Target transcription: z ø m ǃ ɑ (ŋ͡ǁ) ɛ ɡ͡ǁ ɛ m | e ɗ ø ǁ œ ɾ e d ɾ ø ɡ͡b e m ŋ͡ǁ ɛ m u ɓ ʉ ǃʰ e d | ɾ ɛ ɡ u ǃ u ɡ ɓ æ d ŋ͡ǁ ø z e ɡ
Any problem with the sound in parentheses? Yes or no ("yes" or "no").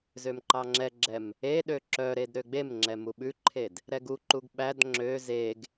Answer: no